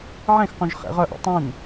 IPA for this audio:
ʕ ẽ x q ũ ʒ χ ḛ ʁ œ ʔ ɔ̰ tˤ ĩ n

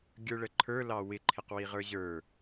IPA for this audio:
ɡʲ ə˞ ɭ ə ǃʰ ə˞ l ɑ w ɪ ǃʰ ɪ q w i ʁ ə˞ ʑ ə˞

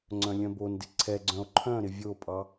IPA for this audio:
ŋ͡ǀ œ̃ lʲ œ̃ b o n d ɪ ǀʰ ɛ ɡ͡ǀ œ̃ o̯ ǃʰ œ̃ ɾ ɪ vʲ o pʼ ɑ

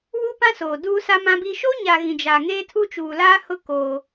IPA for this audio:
w u˦ p ã˦ s oː˨ d uː˦ s a˦ m ã˦ b i˦ ʃ o˦ ɲ a˨ ɣ ĩ˨ d͡ʒ a˨ ŋ eː˦ tʰ u˦ t͡ʃ uː˨ l aː˦ h ʊ˦ k oː˦

